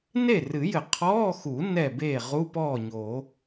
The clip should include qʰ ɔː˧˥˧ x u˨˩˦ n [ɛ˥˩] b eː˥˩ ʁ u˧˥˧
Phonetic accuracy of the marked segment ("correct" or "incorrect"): correct